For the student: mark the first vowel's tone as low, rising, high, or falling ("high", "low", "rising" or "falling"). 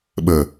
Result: low